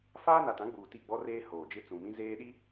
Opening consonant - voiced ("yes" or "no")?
no